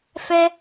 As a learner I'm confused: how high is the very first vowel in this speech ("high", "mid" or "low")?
mid